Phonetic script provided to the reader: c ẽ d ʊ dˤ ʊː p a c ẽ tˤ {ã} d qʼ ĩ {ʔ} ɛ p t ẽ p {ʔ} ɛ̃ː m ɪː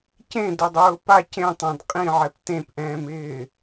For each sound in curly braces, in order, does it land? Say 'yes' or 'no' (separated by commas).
yes, no, yes